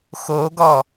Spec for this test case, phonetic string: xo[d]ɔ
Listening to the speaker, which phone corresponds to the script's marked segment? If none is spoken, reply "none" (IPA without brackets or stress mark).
ɡ